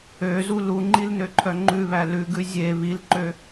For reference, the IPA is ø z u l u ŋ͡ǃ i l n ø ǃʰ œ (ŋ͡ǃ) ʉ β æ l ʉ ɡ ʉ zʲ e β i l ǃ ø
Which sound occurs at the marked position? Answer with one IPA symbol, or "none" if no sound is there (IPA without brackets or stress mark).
ŋ͡ǃ